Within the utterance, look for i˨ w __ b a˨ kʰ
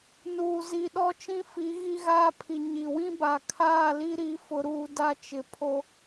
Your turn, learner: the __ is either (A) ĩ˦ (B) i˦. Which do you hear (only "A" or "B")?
A